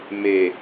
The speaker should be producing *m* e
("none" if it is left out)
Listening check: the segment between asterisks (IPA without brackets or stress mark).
m